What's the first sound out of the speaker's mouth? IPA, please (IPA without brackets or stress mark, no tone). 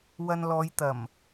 w